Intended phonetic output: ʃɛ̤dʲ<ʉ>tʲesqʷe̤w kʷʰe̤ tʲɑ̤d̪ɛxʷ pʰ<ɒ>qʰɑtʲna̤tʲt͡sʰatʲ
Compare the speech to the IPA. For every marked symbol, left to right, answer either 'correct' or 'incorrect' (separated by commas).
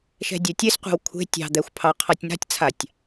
incorrect, incorrect